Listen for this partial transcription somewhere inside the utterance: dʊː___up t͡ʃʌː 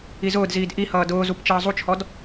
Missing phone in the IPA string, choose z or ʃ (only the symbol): z